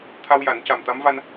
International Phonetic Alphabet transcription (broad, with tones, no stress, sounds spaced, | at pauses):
t̪ʰ a˧ w j a˨˩˦ n c a˨˩ m t̪ a˧˥ m v a˧ n